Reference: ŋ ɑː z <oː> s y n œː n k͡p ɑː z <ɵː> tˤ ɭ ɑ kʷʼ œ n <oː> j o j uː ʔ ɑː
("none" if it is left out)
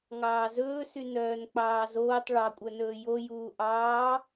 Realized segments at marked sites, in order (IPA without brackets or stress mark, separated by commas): ɵː, oː, ɵː